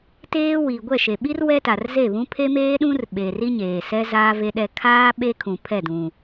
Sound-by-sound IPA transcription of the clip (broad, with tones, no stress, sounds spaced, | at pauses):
t eː˦ w i˨ ɡʷ ɛ˦˨ ʃ e˨ ɓ i˦ r w ɛ˦ t a˨ r z e˦˨ β ũ˦ pʰ e˦ m eː˦ ɗ ũ˦ r ɓ eː˨ r i˦ ɲ eː˨ s ɛ˦ z aː˦ v e˦ ɗ ɛ˦ kʰ aː˦ ɓ e˦ kʰ ũ˨ pʰ ɛ˦˨ d ũ˨